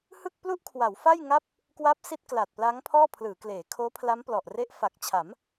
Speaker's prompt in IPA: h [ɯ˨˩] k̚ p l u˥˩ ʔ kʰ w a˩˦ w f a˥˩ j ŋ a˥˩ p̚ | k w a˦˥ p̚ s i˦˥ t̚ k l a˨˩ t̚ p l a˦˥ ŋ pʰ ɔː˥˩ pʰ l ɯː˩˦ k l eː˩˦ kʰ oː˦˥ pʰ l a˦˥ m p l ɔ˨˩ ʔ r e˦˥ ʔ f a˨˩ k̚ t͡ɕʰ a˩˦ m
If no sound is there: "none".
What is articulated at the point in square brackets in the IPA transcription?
ɯ˥˩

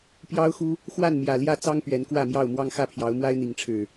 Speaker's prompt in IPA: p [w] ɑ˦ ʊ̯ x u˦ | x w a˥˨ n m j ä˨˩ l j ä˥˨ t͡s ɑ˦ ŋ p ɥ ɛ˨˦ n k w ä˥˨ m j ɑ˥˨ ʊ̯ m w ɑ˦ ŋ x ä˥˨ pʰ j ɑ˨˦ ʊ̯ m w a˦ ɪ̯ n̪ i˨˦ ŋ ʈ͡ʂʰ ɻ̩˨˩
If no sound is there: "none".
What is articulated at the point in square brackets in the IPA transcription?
j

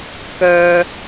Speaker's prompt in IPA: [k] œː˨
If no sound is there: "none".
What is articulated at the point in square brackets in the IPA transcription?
k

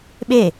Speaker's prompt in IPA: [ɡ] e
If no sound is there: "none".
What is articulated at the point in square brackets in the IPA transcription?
ɓ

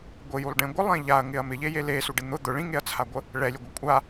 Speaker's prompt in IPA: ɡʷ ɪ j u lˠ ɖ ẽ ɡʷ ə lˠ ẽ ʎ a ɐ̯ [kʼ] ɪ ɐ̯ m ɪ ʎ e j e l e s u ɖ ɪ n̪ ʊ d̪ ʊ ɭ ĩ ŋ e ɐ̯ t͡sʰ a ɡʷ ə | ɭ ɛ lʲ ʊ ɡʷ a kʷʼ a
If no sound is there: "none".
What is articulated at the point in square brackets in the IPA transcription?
ŋ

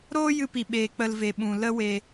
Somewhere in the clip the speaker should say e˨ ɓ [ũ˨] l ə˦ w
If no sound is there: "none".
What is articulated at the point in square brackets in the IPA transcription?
ũ˨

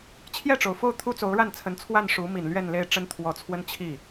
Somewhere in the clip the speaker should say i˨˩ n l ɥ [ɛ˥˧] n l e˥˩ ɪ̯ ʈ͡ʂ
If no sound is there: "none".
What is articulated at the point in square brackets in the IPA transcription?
ɛ˥˧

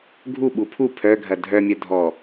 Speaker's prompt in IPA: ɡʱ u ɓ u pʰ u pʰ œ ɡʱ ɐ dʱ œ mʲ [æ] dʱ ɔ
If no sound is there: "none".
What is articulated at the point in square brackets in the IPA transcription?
œ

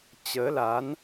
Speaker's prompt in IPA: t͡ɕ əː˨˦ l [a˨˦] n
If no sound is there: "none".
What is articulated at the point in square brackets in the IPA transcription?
a˨˦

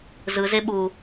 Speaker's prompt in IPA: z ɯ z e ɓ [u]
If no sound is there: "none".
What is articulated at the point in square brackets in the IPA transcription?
u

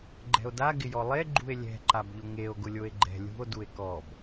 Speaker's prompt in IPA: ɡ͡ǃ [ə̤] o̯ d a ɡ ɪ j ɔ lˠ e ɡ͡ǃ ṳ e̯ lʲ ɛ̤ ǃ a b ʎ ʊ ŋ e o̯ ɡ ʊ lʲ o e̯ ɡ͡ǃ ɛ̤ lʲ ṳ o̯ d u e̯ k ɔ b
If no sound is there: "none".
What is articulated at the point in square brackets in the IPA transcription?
ɛ̤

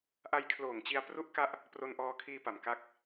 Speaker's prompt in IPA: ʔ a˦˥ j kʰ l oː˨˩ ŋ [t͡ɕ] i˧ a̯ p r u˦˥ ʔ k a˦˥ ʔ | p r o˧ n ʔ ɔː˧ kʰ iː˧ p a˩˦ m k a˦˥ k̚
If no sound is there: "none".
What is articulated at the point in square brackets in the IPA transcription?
t͡ɕ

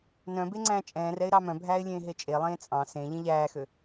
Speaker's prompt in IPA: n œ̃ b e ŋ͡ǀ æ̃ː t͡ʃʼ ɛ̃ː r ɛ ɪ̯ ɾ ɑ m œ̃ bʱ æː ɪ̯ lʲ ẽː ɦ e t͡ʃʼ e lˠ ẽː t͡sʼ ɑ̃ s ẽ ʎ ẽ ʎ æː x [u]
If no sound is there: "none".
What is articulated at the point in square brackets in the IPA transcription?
ø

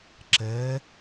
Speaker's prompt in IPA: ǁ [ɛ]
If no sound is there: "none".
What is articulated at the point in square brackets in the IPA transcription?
ɛ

